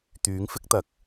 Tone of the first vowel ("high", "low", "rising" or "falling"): rising